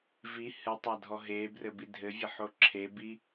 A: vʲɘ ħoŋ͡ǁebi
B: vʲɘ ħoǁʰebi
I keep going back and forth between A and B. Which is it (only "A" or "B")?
B